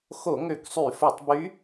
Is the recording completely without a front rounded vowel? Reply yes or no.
no